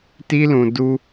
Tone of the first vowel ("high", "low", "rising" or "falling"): high